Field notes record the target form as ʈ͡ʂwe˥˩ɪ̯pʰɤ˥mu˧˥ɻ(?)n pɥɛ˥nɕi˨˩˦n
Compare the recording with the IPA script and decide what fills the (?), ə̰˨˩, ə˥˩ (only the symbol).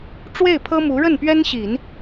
ə˥˩